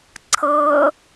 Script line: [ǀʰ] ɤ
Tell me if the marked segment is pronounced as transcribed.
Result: yes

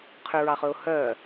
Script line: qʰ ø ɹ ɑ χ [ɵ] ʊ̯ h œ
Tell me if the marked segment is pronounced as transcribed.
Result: yes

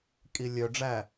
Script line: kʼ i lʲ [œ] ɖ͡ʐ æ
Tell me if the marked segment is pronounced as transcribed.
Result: yes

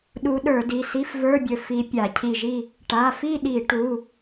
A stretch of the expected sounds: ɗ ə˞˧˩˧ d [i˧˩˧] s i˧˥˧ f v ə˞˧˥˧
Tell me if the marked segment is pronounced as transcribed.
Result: no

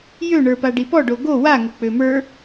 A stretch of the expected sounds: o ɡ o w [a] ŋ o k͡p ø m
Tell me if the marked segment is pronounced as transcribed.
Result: yes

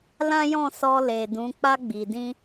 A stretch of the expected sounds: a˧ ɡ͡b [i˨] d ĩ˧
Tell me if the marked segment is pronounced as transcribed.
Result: yes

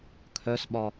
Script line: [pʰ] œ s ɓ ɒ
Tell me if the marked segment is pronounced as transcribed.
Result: no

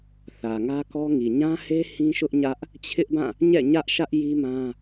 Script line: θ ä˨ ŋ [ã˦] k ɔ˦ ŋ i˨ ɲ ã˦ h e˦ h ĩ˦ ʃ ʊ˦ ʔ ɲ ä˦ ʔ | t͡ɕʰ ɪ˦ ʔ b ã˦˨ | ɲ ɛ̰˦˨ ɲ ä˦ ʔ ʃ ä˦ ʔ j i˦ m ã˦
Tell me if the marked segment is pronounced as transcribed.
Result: no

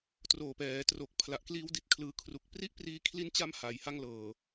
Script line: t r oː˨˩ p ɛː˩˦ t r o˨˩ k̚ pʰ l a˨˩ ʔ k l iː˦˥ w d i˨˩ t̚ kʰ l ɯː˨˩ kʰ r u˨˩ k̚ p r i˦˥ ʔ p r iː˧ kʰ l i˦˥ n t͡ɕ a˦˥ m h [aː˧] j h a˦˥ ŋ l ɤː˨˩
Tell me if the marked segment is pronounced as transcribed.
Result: no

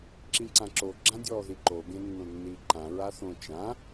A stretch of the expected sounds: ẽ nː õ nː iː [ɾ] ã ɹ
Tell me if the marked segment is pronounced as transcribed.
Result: no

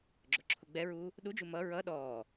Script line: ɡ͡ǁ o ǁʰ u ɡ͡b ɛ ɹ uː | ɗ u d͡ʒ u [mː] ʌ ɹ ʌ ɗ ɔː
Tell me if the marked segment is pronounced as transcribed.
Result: no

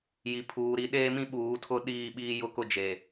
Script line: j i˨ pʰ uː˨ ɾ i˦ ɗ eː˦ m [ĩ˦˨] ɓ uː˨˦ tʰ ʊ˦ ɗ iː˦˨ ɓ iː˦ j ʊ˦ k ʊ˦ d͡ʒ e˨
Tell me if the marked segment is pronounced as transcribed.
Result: no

